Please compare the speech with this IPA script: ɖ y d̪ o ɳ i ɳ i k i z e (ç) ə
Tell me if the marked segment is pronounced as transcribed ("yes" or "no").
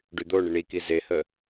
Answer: no